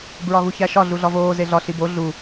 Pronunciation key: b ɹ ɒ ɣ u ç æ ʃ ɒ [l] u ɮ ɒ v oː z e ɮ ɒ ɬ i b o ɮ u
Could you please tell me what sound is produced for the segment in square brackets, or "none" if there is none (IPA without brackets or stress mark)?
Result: ɮ